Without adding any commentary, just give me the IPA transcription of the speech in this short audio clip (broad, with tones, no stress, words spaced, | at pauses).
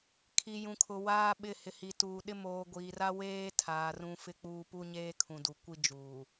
kʰi˨jũ˨kʰʊ˨ waː˦ɓɪ˦˨ hɪ˨hi˨tuː˨ɗɪ˦ moː˨ɡʷiː˨ra˦ weː˦tʰaː˨ rũ˦ fɪ˦k͡puː˦ pu˦ɲeː˦kʰũ˨du˨ kʷi˦ d͡ʒuː˨